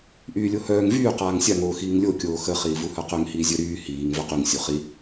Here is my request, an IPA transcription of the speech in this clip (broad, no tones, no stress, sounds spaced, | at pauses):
ʔ yː lʲ o h œː ŋ v yː q aː ŋ sʲ a ŋ oː x iː ŋ lʲ o kʲ oː x ə χ iː v u h œ q ø ŋ h iː zʲ œ ɾ yː h iː ŋ v œ q y ŋ sʲ o χ i